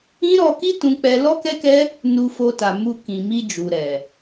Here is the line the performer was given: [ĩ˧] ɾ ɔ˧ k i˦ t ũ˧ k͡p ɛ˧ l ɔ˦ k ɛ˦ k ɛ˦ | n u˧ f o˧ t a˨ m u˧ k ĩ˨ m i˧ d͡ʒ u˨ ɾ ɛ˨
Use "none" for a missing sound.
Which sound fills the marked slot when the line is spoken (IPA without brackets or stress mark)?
ĩ˦